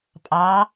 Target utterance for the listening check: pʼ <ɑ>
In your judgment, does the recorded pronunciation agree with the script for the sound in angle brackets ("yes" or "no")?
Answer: yes